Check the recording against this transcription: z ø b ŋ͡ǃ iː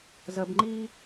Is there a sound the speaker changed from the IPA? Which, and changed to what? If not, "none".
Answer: ø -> ə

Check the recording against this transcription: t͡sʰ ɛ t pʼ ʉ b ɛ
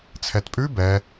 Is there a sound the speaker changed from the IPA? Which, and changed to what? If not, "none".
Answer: none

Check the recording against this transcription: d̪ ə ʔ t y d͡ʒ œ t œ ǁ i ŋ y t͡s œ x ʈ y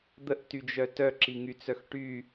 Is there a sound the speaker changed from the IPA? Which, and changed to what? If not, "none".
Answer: none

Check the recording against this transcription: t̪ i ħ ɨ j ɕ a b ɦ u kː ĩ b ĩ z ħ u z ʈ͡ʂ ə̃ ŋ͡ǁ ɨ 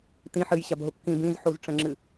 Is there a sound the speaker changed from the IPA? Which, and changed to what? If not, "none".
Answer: i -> ĩ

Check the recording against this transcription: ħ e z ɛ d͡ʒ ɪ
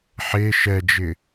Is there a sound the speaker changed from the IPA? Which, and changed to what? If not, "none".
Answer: z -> ʃ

